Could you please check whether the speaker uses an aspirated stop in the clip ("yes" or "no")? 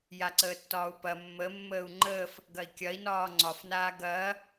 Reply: no